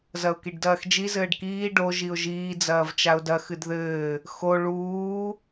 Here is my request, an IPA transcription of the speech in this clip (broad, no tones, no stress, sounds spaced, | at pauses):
z ɐ ʊ̯ k i ɖ d ɐː x d͡ʒ i z ɘː ɖ k iː ɖ o ʒ i ʊ̯ ʒ iː d͡z ɐː v t͡ʃ a ʊ̯ d ɐ x ɨ d ð ɘː | x o ɭ uː